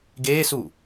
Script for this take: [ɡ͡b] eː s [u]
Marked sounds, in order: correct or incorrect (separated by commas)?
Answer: incorrect, correct